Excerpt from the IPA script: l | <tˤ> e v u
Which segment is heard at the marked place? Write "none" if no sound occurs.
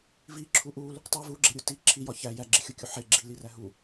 tˤ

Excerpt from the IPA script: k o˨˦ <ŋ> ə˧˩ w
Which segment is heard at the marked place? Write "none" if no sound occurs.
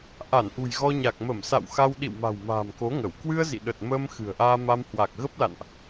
ŋ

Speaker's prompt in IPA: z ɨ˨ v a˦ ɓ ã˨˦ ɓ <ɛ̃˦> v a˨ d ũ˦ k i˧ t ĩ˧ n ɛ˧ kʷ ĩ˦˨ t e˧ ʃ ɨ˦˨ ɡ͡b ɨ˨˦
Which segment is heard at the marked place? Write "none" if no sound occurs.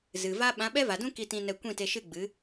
ɛ˦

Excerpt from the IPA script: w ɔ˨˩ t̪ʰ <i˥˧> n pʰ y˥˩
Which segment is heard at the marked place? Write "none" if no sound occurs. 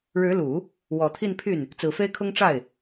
i˥˧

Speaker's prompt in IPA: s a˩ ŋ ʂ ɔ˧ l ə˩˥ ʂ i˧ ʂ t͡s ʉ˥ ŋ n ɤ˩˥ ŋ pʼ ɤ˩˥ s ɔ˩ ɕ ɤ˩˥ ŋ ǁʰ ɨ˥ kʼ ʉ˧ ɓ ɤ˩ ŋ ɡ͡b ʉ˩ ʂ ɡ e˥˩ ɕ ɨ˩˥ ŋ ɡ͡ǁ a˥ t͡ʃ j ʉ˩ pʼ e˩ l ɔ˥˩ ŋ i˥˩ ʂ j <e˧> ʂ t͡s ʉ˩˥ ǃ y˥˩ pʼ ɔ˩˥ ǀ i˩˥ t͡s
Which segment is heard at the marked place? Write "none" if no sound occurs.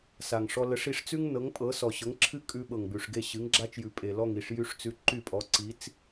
y˧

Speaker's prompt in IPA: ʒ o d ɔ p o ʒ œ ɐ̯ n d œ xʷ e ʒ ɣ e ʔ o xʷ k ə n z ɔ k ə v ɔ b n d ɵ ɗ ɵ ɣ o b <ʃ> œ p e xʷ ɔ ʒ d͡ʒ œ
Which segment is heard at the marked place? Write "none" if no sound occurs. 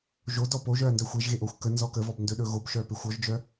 ʃ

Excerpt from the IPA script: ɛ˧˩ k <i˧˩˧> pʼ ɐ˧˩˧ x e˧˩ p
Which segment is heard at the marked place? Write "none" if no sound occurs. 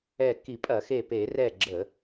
i˧˩˧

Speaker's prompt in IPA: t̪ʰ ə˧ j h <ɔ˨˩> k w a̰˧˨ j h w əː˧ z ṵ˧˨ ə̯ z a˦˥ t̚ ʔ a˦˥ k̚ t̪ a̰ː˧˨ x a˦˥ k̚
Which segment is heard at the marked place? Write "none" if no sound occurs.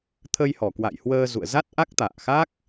ɔ˨˩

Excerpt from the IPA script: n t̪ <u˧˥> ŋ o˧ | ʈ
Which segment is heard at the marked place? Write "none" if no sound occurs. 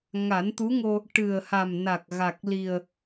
u˧˥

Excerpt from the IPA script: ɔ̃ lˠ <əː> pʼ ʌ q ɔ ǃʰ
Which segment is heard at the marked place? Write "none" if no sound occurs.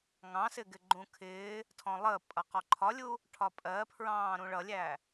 əː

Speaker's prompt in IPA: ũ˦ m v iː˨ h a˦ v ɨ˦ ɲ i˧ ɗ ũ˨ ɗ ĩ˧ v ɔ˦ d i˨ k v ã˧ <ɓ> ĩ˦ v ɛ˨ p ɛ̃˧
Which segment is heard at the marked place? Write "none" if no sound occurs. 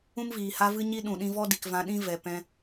ɗ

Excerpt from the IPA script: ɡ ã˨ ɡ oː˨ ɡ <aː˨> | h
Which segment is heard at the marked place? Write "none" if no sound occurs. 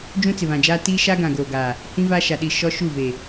aː˨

